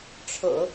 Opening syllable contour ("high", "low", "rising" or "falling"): low